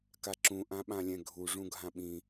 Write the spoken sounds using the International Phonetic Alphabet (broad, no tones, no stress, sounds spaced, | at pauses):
k a ǁ ũ ʔ ã ɓ ã lʲ ɛ̃ ɡʱ u ʐ ũ ɡʱ ã ɓ ĩ